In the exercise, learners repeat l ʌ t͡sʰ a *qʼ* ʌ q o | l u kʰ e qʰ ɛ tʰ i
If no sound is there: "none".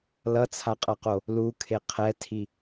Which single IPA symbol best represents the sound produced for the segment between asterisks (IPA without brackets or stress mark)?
qʼ